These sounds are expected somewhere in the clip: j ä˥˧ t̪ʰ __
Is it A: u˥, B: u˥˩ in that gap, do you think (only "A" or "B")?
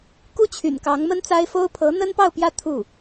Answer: B